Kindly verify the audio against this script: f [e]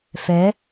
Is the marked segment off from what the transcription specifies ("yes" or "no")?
yes